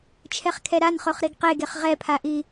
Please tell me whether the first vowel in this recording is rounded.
no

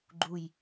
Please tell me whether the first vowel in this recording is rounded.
yes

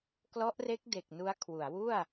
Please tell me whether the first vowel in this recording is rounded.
yes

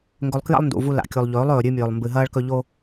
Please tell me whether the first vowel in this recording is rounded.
yes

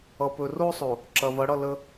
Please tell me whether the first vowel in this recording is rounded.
no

